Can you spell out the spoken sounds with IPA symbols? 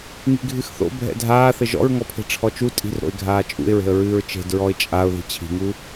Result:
ŋi̤ɡʱɨxθo̰ bʱɛ̰dʱaːθɘ ʒɔ̰ɹŋɔpʰe̤ ʈ͡ʂʰɔt͡ʃu tʼi̤rɾo̰ɪ̯ ɡʱaːt͡ʃʼṵɪ̯ɹe̤ə̯ ɹɨːɹt͡ʃe̤dɹɔɪ̯ t͡ʃʼaʊ̯ ði̤t͡ɕʰi̤ŋu

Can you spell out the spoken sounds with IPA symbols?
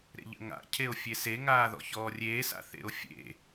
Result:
ɾḛʎə̰ŋa̰ cʰeo̯fʲese ŋaːðɔ̰çɔːrʲeː sa̰θḛo̯fʲḛ

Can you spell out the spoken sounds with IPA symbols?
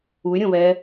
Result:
uy̯ɾʲõβɛ

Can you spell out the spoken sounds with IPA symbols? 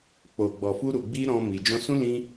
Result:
k͡po˨ɡ͡bɔ˨fu˧ ɾu˨ɡ͡bi˧ ɾɔ̃˧ mi˨ d͡ʒɔ̃˧sũ˦ lĩ˧

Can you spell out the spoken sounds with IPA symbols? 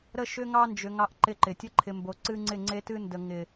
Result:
ɾə˦ʃʏ˦ŋɑ˦nd͡ʒʏ˨ ŋɑ˦ʔǃɪ˦ǃɪ˨ tʲə˦ǃʰɪ˨mbo˨ǀɨ˦ ŋ͡ǀɪ˦˨ŋ͡ǀe˦tɨ˦ndə˨ ŋɪ˨

